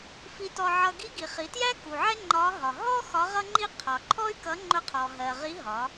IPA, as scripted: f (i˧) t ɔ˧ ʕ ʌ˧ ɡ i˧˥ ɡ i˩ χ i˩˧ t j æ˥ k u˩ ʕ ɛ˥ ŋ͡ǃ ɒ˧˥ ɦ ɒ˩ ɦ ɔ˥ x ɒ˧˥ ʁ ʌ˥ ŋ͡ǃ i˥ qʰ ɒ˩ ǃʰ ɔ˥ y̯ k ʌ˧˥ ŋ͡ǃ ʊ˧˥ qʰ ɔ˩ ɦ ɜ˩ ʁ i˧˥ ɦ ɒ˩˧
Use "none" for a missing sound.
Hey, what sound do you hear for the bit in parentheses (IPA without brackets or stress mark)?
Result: i˧